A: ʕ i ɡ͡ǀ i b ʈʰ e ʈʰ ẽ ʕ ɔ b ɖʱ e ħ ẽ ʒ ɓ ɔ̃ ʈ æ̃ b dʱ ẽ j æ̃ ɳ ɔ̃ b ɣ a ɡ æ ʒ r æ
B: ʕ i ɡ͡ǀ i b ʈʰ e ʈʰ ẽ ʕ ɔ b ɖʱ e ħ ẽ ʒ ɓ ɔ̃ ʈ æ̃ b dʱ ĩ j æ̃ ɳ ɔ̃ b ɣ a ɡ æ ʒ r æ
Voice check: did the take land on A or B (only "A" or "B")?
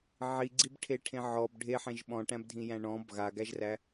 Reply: B